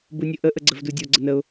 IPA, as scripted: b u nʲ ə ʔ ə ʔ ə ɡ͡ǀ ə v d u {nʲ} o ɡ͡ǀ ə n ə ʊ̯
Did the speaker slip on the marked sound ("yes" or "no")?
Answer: yes